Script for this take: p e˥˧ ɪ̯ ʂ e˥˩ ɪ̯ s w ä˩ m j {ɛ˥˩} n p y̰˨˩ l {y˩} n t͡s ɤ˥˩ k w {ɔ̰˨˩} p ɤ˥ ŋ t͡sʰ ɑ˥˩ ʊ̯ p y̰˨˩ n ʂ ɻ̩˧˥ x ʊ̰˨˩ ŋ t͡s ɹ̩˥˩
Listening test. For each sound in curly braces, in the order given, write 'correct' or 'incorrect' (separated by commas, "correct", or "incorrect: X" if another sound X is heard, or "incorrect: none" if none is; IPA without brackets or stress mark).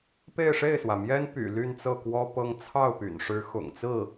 incorrect: ɛ˥, incorrect: y˥˧, incorrect: ɔ˥